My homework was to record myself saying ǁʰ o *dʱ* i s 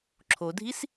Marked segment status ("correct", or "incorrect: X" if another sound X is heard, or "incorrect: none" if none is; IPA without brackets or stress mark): correct